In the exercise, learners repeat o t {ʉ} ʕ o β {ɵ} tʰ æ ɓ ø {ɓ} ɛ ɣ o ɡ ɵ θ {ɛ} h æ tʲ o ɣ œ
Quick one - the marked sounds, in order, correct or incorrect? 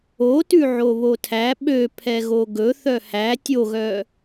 correct, incorrect: o, incorrect: pʰ, incorrect: œ

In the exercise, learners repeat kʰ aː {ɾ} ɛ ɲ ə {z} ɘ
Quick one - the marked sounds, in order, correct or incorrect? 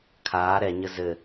correct, correct

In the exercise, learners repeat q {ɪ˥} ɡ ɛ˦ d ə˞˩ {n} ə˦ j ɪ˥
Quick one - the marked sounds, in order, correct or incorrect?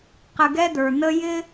incorrect: ɪ˨, correct

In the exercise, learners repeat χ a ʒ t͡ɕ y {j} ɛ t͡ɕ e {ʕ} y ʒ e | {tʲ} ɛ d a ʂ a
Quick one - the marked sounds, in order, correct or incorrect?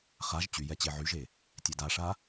correct, correct, correct

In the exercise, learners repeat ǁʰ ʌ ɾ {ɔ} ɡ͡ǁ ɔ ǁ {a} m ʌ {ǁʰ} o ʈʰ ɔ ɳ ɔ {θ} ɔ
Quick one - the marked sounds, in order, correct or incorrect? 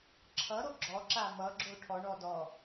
incorrect: o, correct, incorrect: ɡ͡ǁ, incorrect: d

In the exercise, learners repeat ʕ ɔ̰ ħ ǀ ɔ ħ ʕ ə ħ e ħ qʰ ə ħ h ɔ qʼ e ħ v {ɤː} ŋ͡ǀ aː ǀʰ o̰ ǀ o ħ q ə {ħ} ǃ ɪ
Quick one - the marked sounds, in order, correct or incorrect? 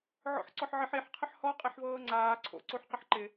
correct, correct

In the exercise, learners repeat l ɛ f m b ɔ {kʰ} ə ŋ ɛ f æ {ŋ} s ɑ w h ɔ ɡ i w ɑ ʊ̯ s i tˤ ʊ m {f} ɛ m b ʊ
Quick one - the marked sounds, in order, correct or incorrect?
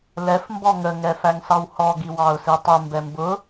incorrect: ŋ, correct, incorrect: b

